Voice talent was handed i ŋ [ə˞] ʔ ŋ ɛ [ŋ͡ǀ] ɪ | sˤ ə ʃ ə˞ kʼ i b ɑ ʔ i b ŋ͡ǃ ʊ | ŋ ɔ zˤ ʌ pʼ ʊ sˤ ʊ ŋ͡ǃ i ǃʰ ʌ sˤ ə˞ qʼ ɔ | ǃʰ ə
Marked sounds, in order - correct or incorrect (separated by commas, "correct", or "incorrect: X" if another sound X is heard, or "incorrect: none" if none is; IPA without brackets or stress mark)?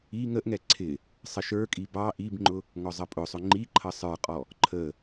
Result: incorrect: ə, incorrect: ǀʰ